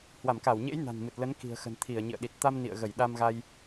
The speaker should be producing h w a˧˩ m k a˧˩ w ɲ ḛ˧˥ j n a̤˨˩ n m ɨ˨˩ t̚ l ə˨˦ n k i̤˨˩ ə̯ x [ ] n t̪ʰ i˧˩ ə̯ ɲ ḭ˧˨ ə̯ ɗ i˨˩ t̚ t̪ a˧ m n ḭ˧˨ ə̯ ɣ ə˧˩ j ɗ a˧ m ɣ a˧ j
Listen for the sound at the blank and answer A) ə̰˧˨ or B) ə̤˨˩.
B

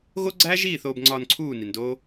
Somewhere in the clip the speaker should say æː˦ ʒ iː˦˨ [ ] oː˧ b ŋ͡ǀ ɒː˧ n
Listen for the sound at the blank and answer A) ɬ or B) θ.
B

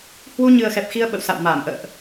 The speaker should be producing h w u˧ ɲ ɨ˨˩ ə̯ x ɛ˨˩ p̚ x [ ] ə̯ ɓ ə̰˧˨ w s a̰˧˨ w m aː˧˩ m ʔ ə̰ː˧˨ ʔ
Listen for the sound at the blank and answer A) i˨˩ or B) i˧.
B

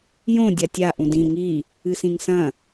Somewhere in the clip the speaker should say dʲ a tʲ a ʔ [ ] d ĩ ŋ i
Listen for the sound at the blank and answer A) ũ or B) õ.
A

